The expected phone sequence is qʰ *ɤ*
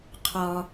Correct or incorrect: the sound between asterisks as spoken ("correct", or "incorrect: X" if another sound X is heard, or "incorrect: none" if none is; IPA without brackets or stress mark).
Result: incorrect: ɔ